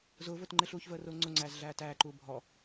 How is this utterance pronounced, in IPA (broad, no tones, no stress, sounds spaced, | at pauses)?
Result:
z ʊː v ʊː t ŋ͡ǃ ɪ ɬ uː ç v əː r ʊː ŋ͡ǀ ʊ ŋ͡ǀ æː z ɮ æː t æː ǃ uː bʱ ɔ